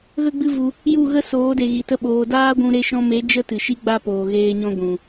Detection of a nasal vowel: present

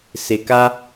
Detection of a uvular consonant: absent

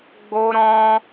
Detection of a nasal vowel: present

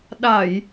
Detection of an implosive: present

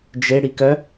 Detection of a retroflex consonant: present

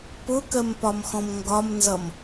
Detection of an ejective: absent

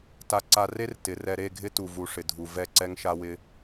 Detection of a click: present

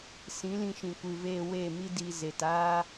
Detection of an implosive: absent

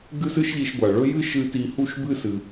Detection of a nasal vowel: absent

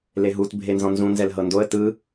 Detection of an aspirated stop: absent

